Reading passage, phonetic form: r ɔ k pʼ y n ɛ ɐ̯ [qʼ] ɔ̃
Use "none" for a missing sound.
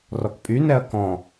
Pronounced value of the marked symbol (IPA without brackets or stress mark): k